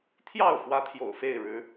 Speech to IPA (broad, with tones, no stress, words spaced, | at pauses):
t̪ʰjɑ˥˨ʊ̯ fwä˦t̪ʰjo̰˨˩ʊ̯fe˥˨ɪ̯ ɻɻ̩˨˦